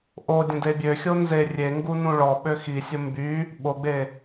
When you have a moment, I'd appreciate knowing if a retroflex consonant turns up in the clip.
yes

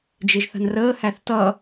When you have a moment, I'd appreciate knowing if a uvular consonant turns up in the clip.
no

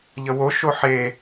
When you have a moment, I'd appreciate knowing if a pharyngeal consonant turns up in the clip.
yes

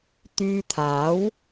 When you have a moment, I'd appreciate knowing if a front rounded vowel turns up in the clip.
yes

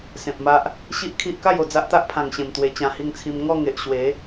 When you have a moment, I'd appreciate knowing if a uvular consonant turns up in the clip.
no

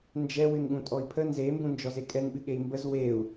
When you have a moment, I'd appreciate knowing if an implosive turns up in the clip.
yes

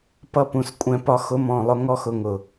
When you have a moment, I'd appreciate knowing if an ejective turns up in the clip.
yes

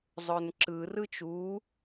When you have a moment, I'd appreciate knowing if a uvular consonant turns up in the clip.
no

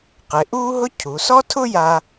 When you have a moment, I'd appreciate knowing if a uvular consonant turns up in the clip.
yes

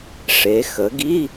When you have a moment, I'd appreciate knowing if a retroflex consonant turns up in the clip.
yes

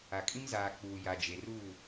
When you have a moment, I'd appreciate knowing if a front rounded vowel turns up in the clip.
no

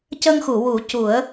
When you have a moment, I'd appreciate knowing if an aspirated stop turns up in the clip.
no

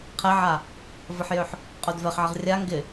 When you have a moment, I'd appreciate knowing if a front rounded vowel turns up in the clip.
yes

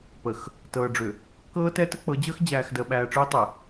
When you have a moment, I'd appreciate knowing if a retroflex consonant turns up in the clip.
yes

